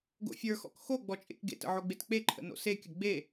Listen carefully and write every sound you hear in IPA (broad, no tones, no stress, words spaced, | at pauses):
ɡo̰fʲə˞xɔ̰k xo ɡ͡bɔt͡ʃʼḛkɡḛtə̰ ʕoɡ͡betk͡peǃʰə̰ no̰sekʲə ɡ͡be